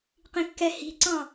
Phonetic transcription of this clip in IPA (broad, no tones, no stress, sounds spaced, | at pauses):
q ĩ kː ɛ h i̤ ǀ ɑ̃